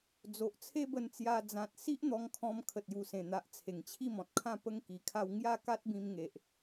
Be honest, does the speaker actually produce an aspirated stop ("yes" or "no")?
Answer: yes